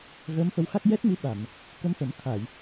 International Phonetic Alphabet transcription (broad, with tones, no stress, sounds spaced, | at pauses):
ɣ əː˧˥ m f ə˧˥ w x a˦˥ k̚ j ɛ˦˥ t̚ m i˧˥ ɓ a˨˩˨ m | k ə˧ m f ə˨˩˦ m t̪ʰ a˨˩˨ j